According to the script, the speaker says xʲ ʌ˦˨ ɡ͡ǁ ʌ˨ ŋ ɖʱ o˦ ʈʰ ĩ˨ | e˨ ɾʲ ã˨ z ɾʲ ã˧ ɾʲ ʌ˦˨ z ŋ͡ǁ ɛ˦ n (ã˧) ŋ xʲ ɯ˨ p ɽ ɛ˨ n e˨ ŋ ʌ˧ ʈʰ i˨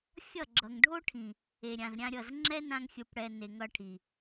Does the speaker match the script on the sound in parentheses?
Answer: yes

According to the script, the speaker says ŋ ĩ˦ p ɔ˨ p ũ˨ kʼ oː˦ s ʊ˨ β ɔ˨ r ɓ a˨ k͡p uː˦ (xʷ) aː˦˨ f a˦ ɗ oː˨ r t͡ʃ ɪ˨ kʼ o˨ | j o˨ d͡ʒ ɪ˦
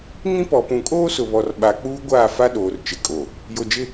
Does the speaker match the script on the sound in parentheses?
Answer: no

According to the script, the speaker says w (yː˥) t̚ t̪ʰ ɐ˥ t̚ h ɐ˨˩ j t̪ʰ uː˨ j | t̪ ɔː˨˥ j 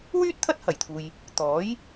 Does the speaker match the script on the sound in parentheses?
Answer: yes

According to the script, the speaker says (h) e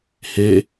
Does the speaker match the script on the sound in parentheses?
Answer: yes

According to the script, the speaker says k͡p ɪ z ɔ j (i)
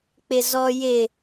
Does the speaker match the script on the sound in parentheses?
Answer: no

